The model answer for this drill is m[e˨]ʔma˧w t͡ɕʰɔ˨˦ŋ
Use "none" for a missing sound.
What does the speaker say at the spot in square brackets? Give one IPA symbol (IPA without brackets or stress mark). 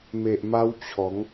e˨